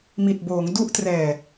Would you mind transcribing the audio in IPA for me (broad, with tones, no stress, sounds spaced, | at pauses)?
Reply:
m i˨˩ t̚ b oː˩˦ ŋ d u˦˥ ʔ t r ɛː˨˩